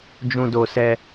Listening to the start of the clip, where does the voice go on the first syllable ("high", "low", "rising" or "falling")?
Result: high